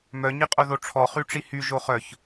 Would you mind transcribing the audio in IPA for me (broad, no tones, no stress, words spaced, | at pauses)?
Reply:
mœ ɲiqʼoðoʈ͡ʂʰɔ χyʈ͡ʂihy ʒoχœç